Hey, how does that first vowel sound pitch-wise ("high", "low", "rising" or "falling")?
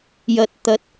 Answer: low